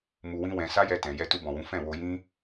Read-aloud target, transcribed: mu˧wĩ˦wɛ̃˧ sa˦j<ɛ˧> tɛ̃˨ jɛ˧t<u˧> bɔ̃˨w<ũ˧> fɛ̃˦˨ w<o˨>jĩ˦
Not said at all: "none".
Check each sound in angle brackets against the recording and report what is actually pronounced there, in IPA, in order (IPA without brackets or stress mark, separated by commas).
ɛ˧, u˧, ũ˨˦, o˧